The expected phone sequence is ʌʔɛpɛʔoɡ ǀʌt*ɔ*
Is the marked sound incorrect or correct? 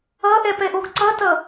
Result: incorrect